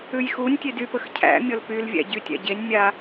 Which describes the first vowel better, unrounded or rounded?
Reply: rounded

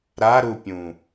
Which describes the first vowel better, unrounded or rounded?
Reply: unrounded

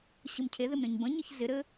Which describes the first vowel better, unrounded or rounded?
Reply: unrounded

